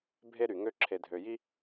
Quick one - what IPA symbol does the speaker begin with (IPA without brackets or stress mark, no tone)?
bʱ